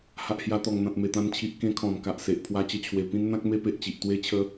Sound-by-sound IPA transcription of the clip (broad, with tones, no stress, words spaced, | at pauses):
ha˨ʔhja˧t̪ɔ˨˩ŋn̪ã˨t̚ me˨˩t̪ã˧nt͡ɕʰi˨ʔ kẽ˦kʰɔ̃˨˩nka˨ʔse˨ʔ pʰwa˧t͡ɕə˧t͡ɕʰwe˨˩pĩ˦n n̪ã˦k̚me˦pe˨ʔt͡ɕi˨ʔ t̪we˦t͡ɕʰə˦